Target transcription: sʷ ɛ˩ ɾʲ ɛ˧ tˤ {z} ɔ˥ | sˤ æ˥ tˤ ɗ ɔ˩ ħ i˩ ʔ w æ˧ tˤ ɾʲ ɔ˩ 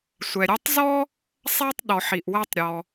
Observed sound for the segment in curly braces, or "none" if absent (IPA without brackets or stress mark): z